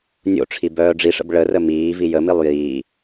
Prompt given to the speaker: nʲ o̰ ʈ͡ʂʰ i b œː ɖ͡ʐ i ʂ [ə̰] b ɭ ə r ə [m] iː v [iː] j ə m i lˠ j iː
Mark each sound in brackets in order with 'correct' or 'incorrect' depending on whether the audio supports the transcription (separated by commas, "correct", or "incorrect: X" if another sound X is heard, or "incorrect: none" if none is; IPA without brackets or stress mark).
correct, correct, incorrect: i